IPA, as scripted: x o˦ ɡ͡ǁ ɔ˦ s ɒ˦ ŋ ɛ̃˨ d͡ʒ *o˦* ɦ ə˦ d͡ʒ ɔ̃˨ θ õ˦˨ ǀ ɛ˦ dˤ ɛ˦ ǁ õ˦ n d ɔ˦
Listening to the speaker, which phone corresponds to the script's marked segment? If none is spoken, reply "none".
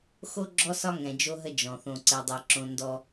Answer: o˦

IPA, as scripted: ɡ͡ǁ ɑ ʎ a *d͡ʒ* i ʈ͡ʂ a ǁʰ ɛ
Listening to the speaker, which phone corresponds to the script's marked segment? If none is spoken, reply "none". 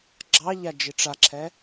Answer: d͡ʒ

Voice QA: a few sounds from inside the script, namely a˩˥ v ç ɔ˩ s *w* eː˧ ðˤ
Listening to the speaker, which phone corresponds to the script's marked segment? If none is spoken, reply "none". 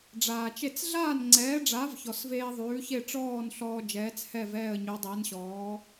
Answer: v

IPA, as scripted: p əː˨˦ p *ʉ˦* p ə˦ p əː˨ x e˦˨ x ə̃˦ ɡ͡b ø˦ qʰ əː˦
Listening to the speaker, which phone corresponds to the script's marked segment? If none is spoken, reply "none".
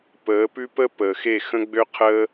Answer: ʉ˦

